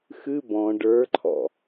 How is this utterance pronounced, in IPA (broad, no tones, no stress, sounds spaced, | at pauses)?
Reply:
x ɨ b ɔ̃ ɖ ə˞ ǃʰ ɔ̰